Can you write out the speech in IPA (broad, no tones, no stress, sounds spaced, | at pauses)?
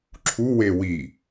ǁʰ u w e w i